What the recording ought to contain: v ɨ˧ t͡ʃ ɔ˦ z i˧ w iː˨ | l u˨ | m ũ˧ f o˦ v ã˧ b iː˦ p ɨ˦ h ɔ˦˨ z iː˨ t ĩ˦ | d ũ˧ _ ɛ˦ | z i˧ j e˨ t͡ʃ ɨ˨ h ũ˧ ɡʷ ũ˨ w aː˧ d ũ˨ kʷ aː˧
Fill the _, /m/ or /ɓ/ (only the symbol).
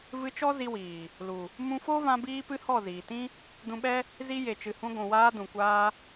ɓ